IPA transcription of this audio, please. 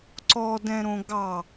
ǀ ɔ d ɛ̃ ɾ õ ɡ ɑ

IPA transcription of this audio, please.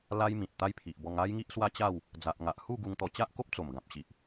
l a˦ j m ĩ˨ t̚ t̪ a˦ j pʰ i˨ ʔ b ɔ˧ ŋ a˦ j ŋ i˦ ʔ s w a˦ t͡ɕ a˥˧ w | d͡z a˨ ʔ ŋ a˨ ʔ h u˥˧ ɡ u˧ ŋ t̪ ɔ˧ t͡ɕ a˦ ʔ k o˦ p̚ t͡s o˨˩ m ɡ ã˨ p̚ ɕ i˨ ʔ

